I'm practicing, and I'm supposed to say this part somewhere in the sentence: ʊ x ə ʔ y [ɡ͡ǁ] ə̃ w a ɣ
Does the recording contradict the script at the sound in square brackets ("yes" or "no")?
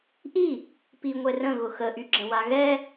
no